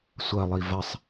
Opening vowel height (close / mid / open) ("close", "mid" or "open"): open